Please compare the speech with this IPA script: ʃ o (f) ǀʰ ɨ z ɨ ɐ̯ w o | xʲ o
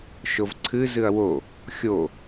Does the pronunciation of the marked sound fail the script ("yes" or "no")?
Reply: yes